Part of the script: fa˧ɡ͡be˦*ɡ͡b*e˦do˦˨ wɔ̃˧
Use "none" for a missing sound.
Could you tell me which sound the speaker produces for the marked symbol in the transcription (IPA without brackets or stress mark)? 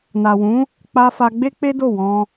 k͡p